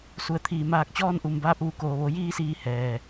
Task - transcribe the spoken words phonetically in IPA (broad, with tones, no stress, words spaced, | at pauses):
su˩˧ə̯ t̪ʰiː˩ maː˧˩k̚t͡ɕɔː˧n ʔu˩mbaː˧p̚ ʋu˩koː˩ʋo˩˧ jiː˧siː˧˩ hɛː˩